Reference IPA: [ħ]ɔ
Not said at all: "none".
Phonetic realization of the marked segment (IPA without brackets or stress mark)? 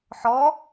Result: ħ